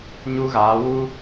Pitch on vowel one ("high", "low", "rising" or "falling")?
high